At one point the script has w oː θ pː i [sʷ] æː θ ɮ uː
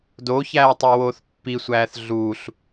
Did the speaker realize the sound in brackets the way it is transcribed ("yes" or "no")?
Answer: yes